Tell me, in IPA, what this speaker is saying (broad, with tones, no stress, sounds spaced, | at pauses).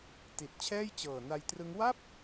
t i˨˩ t̚ t͡ɕʰ ɛː˥˩ j t͡ɕ ɤː˨˩ n a˧ j t r ɯ˦˥ ŋ w a˥˩ p̚